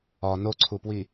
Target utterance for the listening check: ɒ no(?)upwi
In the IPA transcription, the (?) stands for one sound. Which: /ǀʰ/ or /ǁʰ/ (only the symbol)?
ǀʰ